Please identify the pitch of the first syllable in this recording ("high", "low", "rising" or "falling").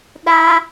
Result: high